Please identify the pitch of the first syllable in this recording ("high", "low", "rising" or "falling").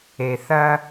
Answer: low